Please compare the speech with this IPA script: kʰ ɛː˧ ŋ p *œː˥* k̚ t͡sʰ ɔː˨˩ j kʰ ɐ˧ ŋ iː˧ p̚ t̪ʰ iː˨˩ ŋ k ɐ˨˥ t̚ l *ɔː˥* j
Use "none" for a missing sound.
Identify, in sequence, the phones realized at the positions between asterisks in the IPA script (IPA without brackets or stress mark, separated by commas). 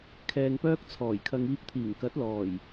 œː˥, ɔː˨˩